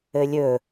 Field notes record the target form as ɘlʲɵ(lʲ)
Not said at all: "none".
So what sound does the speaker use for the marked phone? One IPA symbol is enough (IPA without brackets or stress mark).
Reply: none